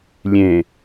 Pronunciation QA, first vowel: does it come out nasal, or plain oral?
nasal